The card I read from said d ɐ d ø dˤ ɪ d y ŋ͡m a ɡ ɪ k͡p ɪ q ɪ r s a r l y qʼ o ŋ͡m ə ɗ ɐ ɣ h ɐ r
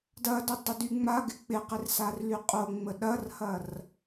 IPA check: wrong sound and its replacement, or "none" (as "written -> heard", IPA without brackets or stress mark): ɣ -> r